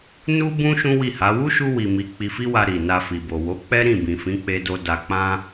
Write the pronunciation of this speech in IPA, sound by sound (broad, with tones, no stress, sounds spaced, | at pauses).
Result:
n u˦ b ũ˦ ʃ ũ˦ w i˦˨ h a˨˦ w u˦ ʃ u˧ w i˨ m i˨˦ k͡p i˧ f i˦ w a˧ ɾ i˨ n a˧ f i˨ b o˨ w o˨˦ k͡p ɛ˦ ɾ ĩ˦˨ b ĩ˨ f ĩ˨˦ k͡p e˧ d o˧ d a˧ k͡p ã˦